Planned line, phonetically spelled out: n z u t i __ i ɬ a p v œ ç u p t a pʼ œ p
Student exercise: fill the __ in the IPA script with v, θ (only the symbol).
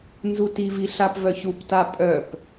v